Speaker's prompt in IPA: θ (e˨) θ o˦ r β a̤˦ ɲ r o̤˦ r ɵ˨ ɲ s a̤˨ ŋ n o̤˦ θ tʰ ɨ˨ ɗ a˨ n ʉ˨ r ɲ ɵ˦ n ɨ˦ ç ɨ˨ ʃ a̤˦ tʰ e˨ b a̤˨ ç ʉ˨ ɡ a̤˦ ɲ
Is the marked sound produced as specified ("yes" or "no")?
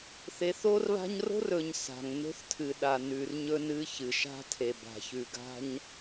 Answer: yes